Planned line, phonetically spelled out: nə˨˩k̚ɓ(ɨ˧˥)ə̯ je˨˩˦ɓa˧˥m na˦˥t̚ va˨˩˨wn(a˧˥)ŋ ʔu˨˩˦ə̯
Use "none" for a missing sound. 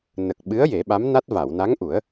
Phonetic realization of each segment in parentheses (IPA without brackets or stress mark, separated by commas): ɨ˧˥, a˧˥